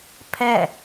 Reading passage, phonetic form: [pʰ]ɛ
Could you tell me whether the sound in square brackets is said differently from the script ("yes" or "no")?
no